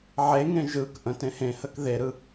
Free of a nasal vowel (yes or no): no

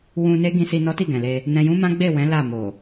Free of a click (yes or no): yes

